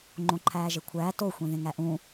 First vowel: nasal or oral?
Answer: nasal